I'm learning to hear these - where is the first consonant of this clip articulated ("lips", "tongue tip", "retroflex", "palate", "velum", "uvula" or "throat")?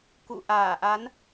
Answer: velum